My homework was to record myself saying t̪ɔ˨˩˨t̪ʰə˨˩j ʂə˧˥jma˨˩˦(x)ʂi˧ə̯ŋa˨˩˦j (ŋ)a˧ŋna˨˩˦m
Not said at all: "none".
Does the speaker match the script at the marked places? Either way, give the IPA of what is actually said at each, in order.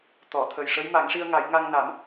ŋ, ŋ

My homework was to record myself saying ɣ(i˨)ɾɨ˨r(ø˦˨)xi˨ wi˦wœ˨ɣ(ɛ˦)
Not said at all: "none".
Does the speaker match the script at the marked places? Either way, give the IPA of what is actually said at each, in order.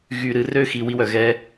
y˨, ø˦˨, ɛ˦

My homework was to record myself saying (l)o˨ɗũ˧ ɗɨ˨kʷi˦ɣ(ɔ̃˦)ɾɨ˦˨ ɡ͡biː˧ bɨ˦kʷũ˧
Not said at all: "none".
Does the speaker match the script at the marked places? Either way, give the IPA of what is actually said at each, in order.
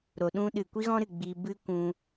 ɾ, ɔ̃˦

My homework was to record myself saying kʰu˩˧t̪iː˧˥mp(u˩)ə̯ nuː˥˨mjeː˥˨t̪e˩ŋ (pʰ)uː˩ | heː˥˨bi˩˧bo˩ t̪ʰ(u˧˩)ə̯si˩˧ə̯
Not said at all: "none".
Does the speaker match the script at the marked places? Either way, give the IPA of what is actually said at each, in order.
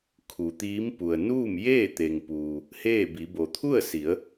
u˩, p, u˥˨

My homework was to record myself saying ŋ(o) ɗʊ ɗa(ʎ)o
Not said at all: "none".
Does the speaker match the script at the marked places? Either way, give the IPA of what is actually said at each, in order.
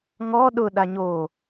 ɔ, ɲ

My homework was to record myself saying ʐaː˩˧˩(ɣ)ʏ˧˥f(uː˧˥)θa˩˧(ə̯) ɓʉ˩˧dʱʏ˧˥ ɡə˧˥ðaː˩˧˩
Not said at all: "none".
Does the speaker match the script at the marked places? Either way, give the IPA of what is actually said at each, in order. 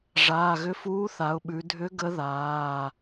ɣ, uː˧˥, ʊ̯

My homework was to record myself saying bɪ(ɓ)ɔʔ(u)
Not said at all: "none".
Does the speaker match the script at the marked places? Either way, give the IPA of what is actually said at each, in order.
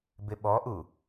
ɓ, u

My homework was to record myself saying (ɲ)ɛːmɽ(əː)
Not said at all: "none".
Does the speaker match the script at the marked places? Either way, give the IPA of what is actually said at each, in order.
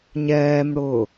ɲ, ʊː

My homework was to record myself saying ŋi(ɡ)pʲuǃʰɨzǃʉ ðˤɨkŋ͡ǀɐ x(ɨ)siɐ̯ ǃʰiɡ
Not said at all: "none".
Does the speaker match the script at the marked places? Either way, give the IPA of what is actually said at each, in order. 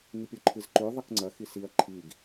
none, i

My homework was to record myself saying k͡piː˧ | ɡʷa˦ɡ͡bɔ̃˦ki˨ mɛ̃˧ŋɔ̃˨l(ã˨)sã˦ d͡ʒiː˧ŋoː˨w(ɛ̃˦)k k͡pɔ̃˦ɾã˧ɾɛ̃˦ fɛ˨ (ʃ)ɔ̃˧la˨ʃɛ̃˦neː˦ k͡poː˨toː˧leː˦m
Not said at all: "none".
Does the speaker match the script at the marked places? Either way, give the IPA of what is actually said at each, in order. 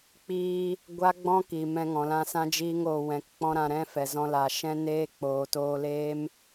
ã˧, ɛ̃˨, z

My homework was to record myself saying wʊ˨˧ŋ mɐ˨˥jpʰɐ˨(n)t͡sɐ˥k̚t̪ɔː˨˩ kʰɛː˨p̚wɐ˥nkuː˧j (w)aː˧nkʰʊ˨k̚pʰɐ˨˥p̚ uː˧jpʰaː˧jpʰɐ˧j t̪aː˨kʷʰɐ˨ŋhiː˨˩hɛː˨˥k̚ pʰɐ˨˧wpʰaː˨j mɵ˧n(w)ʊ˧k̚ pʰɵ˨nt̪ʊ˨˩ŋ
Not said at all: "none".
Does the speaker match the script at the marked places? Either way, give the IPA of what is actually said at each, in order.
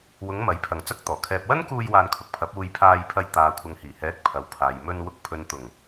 ŋ, w, w

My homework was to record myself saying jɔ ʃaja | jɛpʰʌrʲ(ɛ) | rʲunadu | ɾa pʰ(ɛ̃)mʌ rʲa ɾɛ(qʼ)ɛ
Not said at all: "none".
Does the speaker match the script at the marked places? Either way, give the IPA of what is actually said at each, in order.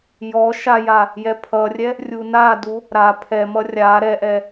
ɛ, ɛ, ʔ

